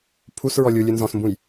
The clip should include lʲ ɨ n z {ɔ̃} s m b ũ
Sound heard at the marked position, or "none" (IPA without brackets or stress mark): ɔ̃